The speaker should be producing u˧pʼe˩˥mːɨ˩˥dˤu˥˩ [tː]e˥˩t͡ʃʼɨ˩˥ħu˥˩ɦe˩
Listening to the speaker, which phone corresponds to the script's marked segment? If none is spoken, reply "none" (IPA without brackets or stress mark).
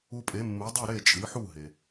ɾ